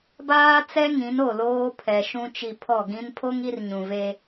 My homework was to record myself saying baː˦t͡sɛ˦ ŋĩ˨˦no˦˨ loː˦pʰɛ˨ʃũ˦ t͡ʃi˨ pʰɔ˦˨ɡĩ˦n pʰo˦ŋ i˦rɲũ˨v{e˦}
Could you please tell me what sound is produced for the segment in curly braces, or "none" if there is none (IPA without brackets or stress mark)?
e˦